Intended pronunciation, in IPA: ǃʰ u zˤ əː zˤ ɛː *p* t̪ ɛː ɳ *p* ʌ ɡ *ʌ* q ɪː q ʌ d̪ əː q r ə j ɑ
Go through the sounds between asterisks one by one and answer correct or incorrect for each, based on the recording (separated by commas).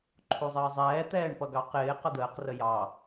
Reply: incorrect, correct, incorrect